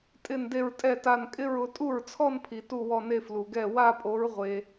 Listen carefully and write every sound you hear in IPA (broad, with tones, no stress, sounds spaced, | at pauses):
tʼ ɪ˥˧ n d e˥˧ ɹ tʼ ɛ˥˧ t a˥˧ n kʼ ɪ˥˧ ɹ ʊ˨˥ tʼ u˥˩ ɹ t͡sʰ ɔ˥˧ n pʰ i˨ t u˥˧ w ɔ˥˧ n e˥˧ f l u˨ ɡ ɛ˥˩ w a˥˧ pʼ o˨˥ ɹ ʁʷ e˨